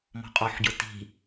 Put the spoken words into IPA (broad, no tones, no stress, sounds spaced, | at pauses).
m ɔ̤ qʼ ɔ ħ ɟ ʊ t i̤